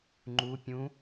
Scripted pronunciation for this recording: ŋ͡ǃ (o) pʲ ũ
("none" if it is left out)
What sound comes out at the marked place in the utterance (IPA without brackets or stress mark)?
u